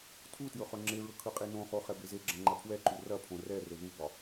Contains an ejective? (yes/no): yes